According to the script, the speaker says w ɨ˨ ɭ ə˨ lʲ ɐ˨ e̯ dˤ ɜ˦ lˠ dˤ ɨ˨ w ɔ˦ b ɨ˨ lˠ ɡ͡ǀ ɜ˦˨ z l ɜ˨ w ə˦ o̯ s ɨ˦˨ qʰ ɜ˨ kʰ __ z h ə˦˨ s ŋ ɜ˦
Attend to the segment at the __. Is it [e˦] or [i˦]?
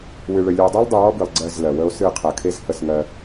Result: e˦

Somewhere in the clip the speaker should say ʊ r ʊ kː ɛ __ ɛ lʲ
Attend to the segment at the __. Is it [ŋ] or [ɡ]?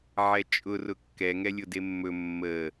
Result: ŋ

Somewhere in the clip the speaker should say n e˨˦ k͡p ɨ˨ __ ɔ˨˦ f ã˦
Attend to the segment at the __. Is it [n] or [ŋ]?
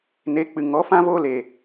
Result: ŋ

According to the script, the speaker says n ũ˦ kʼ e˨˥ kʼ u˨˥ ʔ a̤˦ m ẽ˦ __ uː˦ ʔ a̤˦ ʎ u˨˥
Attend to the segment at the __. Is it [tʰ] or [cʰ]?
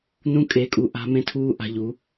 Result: tʰ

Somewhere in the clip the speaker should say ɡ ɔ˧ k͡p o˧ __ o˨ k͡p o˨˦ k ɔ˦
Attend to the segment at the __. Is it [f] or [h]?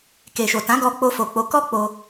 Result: f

